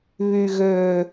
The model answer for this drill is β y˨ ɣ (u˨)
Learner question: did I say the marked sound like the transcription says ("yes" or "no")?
no